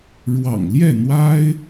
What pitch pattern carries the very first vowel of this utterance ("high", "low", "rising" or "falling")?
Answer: low